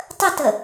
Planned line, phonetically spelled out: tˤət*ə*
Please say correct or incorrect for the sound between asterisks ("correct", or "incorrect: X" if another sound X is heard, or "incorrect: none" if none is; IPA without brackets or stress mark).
correct